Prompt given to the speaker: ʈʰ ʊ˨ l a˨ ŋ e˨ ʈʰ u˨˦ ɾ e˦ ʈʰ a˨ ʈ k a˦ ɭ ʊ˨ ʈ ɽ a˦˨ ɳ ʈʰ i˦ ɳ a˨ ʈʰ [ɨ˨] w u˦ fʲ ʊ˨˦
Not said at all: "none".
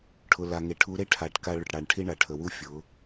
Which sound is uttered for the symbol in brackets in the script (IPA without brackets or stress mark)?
ə˨